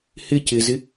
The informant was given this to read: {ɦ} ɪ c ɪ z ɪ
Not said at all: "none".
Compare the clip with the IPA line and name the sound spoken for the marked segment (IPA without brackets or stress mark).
h